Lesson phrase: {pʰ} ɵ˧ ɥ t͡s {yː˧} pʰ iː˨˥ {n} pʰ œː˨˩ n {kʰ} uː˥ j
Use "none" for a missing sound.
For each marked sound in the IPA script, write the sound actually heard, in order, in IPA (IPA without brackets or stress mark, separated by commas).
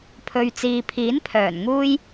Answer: pʰ, iː˧, n, ŋ